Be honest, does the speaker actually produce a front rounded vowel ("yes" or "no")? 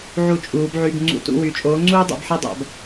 yes